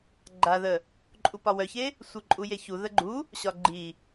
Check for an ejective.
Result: present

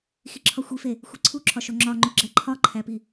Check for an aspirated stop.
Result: present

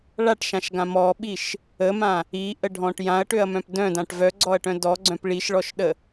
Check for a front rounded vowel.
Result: present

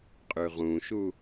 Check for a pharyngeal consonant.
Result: absent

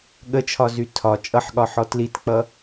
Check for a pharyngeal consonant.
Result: present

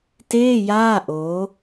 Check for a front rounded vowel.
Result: absent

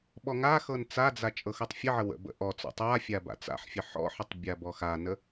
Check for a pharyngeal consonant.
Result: present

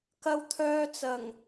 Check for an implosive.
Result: absent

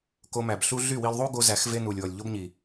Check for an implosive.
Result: absent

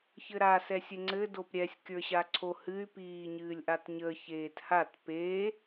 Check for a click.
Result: present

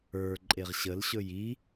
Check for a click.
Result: present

